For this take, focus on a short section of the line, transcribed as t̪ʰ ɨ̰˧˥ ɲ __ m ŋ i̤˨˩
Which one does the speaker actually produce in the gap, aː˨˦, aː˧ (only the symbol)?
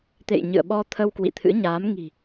aː˨˦